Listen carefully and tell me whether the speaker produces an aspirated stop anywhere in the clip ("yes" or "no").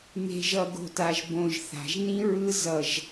no